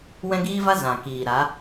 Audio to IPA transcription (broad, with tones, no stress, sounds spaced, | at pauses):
w ɛ̃˦ ɡ iː˦ v a˦ z ã˨ k iː˨ ɾ a˨˦